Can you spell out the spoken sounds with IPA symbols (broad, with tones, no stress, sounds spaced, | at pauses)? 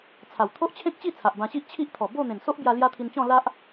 t͡sʰ a˨˩ w t̪ʰ o˦ ʔ t͡ɕʰ ẽ˦ k̚ t͡ɕ i˥˧ t͡sʰ a˨ ʔ b ã˧ ɕ i˦ ʔ t͡ɕʰ i˦ ʔ t̪ʰ ɔ˨˩ b o˥˧ n̪ ẽ˨˩ n s o˦ ʔ b j a˧ l j a˦ t̪ʰ i˧ n t͡ɕ ɔ̃˥˧ l a˦ ʔ